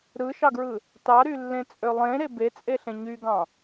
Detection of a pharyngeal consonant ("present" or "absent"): absent